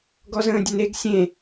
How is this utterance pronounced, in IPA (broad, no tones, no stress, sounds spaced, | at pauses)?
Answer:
ɡ ɔ z ə̃ː dʲ ə n e ɡ sʲ ẽ